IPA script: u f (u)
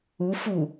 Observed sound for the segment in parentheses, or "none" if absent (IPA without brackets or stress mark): u